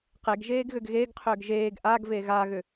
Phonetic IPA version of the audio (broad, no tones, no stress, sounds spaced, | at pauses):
q e ɡ ʒ eː ɡ ɣ ʏ ɡ ɣ e ɡ qʰ ʏː ɡ ʒ eː ɡ ʔ a ɡ v e ɣ a ɣ ʏ